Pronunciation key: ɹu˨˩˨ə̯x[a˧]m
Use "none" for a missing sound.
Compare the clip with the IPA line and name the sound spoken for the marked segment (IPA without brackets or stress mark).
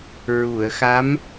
a˧˥